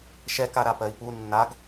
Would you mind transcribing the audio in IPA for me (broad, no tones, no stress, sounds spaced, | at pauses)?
ʃ ɛ k a ɾ a p ɜ i̯ p u nː a ɡ